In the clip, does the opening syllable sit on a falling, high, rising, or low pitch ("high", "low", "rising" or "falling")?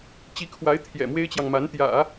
rising